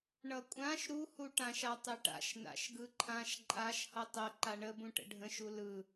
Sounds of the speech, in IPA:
ɳʌkʷʼãʃ ɾuhuʈãʃ atˤɘʈa̰ʃ na̰ʃɡɯǃʰãʃ ǃʼaʃ hʌtˤə ǃaɳəbũʈə̰ ɖʱə̃ʃ ulɯ

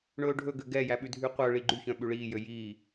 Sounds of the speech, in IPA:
ɳɵːɖʱɵɡø ɡɛjæ ɓʉdʱyqʷœɭi ɡ͡ǃyçœ̃ ɓʉɭiːjø jiː

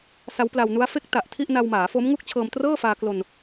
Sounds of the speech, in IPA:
sa˦˥wpla˧wnu˦˥a̯ fe˦˥k̚ta˨˩ʔ tʰi˥˩ʔ na˧wmaː˩˦fo˦˥m ŋu˥˩k̚t͡ɕʰɤː˧mtrɤː˥˩faː˧ klo˧n

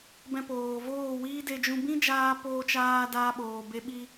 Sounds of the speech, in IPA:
bɛ̃˧poː˨voː˦˨wiː˦ de˧d͡ʒũ˧ bĩ˦d͡ʒaː˧ poː˧t͡ʃaː˧ daː˦ɓoː˨be˦ ɓi˧

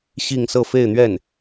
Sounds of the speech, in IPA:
ɕi˥˧ŋ sɤ˥˧fe˥˧ɪ̯n̪ɥɛ˥˩n

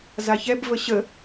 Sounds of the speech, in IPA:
zaçɛb vəɕə

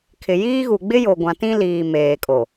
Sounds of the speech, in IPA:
kʰɪ˨jiː˦ɣu˨ ɡ͡bɪ˦jo˨ ɡʷã˨tĩ˦liː˨ meː˨kʼo˨

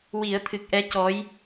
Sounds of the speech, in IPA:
wi˨˩˦ə̯t̪ʰɨ˨˩k̚ʔɛ˧˥ cɔ˧˥j

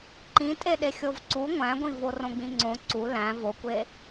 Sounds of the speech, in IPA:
ǃĩtʼeɗe xʲovǀu ŋʷæ̃ɡʷĩvo rõɡ͡bĩŋ͡ǀõ ǀu læ̃ vokʷe

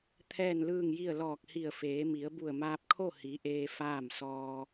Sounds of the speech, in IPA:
t̪ʰɛː˥˨nlɯː˥˨ŋji˥˨ə̯ lɔː˧˩k̚hi˧˩ə̯feː˩˧mi˩˧ə̯ bu˧˩ə̯maː˧p̚kʰo˥˨hi˩˧ ʔeː˧ faː˥˨m sɔː˧

